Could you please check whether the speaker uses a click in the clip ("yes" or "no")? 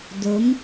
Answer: no